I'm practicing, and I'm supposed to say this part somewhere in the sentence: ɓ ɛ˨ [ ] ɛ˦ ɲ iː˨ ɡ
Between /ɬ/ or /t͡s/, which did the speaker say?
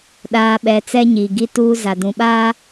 t͡s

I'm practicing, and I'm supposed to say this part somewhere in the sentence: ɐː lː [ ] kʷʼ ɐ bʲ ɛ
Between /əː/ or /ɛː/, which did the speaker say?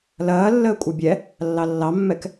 əː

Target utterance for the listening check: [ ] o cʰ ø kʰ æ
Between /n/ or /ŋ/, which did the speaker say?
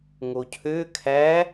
ŋ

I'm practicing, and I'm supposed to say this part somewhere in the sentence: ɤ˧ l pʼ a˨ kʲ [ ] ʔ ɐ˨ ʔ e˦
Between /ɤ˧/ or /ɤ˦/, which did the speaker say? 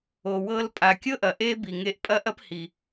ɤ˦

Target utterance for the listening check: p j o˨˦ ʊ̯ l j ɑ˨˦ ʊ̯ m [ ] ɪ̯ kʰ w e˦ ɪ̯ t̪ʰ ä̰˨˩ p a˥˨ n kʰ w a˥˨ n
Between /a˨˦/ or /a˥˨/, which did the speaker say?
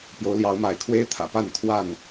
a˨˦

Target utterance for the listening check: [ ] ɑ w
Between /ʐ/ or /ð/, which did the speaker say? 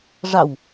ʐ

